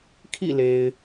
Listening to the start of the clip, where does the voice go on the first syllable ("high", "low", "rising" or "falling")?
falling